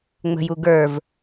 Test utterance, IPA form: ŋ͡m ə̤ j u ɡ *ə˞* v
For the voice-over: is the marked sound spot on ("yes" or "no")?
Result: yes